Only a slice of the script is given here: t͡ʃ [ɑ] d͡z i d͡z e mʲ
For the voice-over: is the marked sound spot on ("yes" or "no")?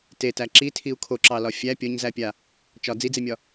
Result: no